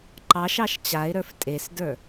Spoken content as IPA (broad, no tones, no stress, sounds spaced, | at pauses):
ǃ ɑ ʃ ɑ ʃ t͡ɕ a ɪ̯ ɾ ə˞ f tʼ e s d ə˞